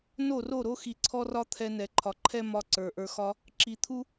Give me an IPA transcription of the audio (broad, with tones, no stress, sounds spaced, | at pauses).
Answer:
n o˦˨ r o˦˨ ɾ o˦ x i˨ ǀʰ ɔ˦ r ɒ˦ t̪ʰ ɛ˧ n ɛ˨ ǃʰ ɒ˨ ǃʰ ɛ˦ m ɒ˧ ǀ ə˞˨ ʔ ə˞˧ x ɒ˦ | ǁ i˨ t̪ʰ u˦